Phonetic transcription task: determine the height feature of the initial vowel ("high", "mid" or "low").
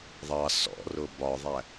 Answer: low